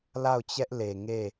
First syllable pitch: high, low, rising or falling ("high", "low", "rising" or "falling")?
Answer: falling